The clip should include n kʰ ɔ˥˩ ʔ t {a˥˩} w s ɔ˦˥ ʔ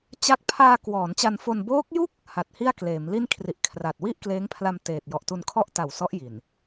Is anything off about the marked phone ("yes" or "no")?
yes